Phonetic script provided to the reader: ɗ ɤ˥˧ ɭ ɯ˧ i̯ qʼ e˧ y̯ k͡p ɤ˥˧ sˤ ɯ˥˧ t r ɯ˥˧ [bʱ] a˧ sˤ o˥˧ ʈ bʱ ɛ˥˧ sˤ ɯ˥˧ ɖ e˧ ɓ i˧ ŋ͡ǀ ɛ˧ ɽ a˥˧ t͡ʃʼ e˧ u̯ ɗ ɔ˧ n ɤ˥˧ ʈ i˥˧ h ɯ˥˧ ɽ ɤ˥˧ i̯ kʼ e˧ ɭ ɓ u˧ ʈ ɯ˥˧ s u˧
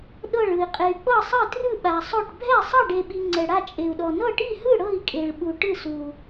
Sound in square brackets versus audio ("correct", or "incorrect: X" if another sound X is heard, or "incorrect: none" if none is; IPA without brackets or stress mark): incorrect: ɓ